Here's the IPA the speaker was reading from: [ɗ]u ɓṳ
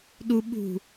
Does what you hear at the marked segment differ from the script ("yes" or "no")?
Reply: no